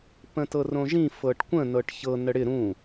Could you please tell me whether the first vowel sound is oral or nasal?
nasal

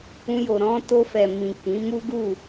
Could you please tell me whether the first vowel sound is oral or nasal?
nasal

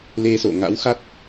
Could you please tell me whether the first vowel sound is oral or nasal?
oral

